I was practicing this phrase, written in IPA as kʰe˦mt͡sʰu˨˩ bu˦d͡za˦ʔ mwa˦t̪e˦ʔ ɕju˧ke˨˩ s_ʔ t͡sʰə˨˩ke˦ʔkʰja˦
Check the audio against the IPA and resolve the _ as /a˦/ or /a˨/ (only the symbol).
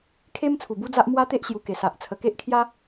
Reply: a˨